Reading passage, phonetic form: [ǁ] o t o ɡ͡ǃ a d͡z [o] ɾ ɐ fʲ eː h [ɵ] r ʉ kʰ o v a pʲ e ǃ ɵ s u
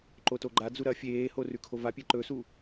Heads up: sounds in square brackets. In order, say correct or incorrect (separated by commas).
incorrect, incorrect, incorrect